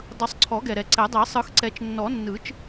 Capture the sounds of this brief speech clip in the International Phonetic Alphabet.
dˤ ɯ˨˩˦ sˤ ǀʰ ɔ˨˩˦ ɡ ɛ˨ ɾ ɛ˨ ǀ ɛ˨˩˦ dˤ i˨˩˦ sˤ ɯ˨˩˦ x ǀ ɛ˨˩˦ t͡ʃ nː ɔ˨˩˦ nː ɯ˨˩˦ t͡ʃ

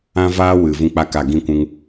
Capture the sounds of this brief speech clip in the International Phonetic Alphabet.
ã˦ v aː˦ w ɨ˨ v ũ˦ k͡p a˦ k a˦˨ ɡ ĩ˦˨ kʷ ũ˧ ŋ

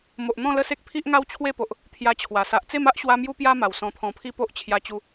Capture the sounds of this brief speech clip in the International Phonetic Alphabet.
m o˨ ʔ n̪ ɔ̃˥˧ l ə˥˧ s e˦ k̚ pʰ i˦ ʔ ŋ a˦ w t͡ɕʰ w e˥˧ p o˨ ʔ | t̪ʰ j a˧ t͡ɕʰ w a˨˩ s a˨ ʔ t͡s e˥˧ m a˦ ʔ ɕ w a˧ m j u˦ p j a˦ m a˨˩ w s ɔ̃˧ t̪ʰ ɔ̃˧ pʰ i˦ p o˦ ʔ t͡ɕʰ j a˧ t͡ɕ u˧

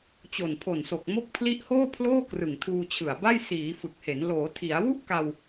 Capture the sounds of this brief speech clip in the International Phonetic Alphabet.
t͡ɕ o˨˩ n pʰ o˨˩ n s o˨˩ k̚ m o˦˥ k̚ pʰ l i˦˥ ʔ h oː˥˩ pʰ l oː˥˩ k r ɯ˨˩ ŋ tʰ uː˧ t͡ɕʰ ɯ˨˩ a̯ b a˥˩ j s iː˩˦ f ɯ˨˩ k̚ h e˩˦ n l oː˩˦ tʰ i˩˦ a̯ w u˥˩ ʔ k a˧ w

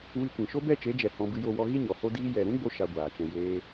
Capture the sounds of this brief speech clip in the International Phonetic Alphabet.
w i˧ kʷ ĩ˨ ʃ o˦ b ɛ˦˨ t͡ʃ e˨˦ d͡ʒ ɛ˨ h ɔ̃˧ b ɨ˧ j o˧ w ɔ˧ ɣ i˦ ɲ ɔ˨ h o˦ d iː˦ j ɛ˨ ɾ ũ˦ ɡ͡b o˧ ʃ a˧ ɡʷ aː˨ t͡ʃ ɛ̃˧ j eː˧

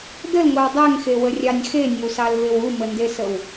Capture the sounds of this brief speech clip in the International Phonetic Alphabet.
d ə l ŋʷ ɛ w dˤ ɛ ŋ x e w ə rʲ ɑ nʲ x e nʲ ə w s ɑ l v e w u m ə n d e s ə w

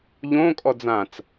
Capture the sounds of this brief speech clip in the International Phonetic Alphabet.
ʎ õː kʼ ɔ d͡z ã t͡s

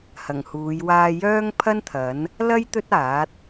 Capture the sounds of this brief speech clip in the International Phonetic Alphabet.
h ɐ˨˩ ŋ h uː˨˧ j w aː˧ j œː˥ ŋ pʰ ɐ˥ n t̪ʰ ɐ˨˥ n | l ɐ˥ j t̪ ɵ˥ t̚ aː˨˥ t̚

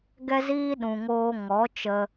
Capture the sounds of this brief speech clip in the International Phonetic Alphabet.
ɡ ɛ˧ z iː˧ ɗ ũ˨ ŋ oː˧ ŋ ɔ˨˦ t͡ʃ ə˧

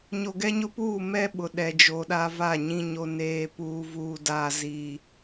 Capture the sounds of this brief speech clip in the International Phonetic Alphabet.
ɲ o˨ ɡ ɛ˦ ɲ ʊ˦ p uː˦˨ m ɛ˦ ɓ ʊ˨ ɗ ɛ˨ d͡ʒ o˨ ɗ a˦ v a˦˨ ɲ ĩ˦ ɲ o˦ n eː˦ p uː˦ v uː˦ d aː˦ z i˦

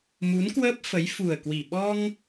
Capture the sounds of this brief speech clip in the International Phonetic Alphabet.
m u˨˦ n k w əː˦˥ p̚ f ə˨˦ j f u˨˩ ə̯ k w i˨˩ ɓ ɔ˧ ŋ

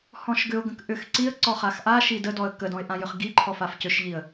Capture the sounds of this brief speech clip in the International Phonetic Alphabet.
h ɔ̃ ʃ ɡ ʏ ʊ̯ ɡ ə̃ k ʔ ʏ x ǀ i ə̯ ǀ ɔ χ a x ʔ a ʃ i d ə d ɔ ə̯ k ə d ɔ̃ ɪ̯ ʔ ã j ʏ χ ɡ i ǃʰ ɔ f a f c ʏ ʃ ʎ i ə̯

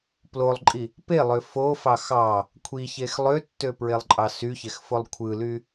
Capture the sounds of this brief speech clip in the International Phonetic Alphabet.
p l o lˠ ǃʼ i | p e lˠ ø f o f ɑ x ɑ | kʷʰ i ç e x lˠ ø tː ø p ɹ e lˠ ǃʼ ɑ s y ç e x f o lˠ kʷʰ ɯ l y

